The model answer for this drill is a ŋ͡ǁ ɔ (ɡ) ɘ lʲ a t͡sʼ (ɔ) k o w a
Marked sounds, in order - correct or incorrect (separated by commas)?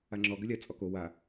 correct, correct